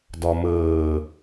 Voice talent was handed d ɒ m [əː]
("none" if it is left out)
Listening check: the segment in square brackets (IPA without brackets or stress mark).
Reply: əː